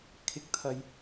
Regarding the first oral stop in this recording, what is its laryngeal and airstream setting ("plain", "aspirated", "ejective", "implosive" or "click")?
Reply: aspirated